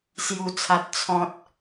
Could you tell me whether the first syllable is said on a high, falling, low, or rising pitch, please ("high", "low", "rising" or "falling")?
low